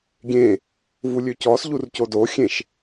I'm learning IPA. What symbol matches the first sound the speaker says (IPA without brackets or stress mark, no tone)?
ɡʲ